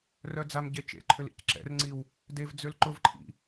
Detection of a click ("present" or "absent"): present